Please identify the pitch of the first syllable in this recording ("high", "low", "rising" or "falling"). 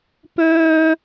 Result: high